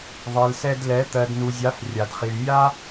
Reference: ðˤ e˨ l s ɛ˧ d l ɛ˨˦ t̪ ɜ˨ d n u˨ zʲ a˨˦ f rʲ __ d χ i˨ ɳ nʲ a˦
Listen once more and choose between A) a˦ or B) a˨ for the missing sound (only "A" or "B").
B